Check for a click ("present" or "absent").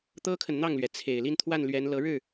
absent